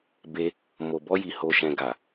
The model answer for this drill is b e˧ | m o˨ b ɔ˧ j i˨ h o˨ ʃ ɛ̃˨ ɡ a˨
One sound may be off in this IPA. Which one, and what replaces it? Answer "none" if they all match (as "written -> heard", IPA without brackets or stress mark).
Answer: none